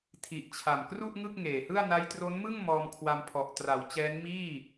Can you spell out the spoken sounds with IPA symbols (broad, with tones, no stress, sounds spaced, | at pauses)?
tʰ i˨˩ ʔ t͡ɕʰ a˨˩ m k r u˥˩ ʔ ŋ ɯ˥˩ k̚ ŋ eː˨˩ h ɯ˥˩ a̯ n a˦˥ j t r o˦˥ n m ɯ˥˩ ŋ m ɔː˧ m kʰ w a˧ m pʰ ɔ˨˩ ʔ t r a˩˦ w t͡ɕ ɛː˦˥ n m iː˥˩